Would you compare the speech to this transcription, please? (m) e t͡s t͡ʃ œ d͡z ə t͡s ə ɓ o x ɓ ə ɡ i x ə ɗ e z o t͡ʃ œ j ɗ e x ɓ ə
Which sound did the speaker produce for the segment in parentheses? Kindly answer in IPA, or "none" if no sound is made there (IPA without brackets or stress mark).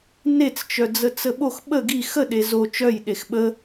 n